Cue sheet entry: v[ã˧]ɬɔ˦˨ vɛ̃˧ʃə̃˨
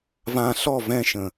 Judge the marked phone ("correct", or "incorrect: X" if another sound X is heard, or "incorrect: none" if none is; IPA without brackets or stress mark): correct